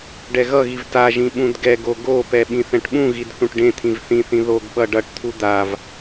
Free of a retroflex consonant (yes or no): no